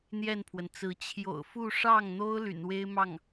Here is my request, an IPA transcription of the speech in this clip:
n̪ j ɛ˥˩ n pʰ w ə˩ n t͡s ɹ̩˧˥ t͡ɕʰ j o̰˨˩ ʊ̯ f u˥˧ ʂ ɑ˥˩ ŋ n̪ o˥ ʊ̯ l y̰˨˩ n w e˥ ɪ̯ m ɑ˥˩ ŋ

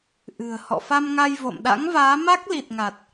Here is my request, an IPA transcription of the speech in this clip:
ʔ ɨ̤˨˩ ə̯ h ɔ̰˧˨ f a˧ m ŋ a˧ j v o̰˧˨ m ɗ a̰˧˥ ŋ v aː˨˦ m a˦˥ k̚ l i˨˩ t̚ ŋ a˨˩ t̚

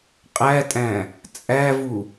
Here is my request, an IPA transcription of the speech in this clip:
qʼ æ tʼ æ̃ | t͡sʼ æ v u

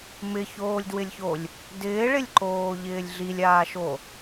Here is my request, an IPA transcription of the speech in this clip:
m ɪ ç oː lʲ d w ɪ lʲ ç o lʲ | d ɪː ɭ ɪ lʲ ǃ oː ʎ ɪː lʲ ɮ i lʲ aː ʃ o

